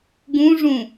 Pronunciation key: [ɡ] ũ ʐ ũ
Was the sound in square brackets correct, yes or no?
yes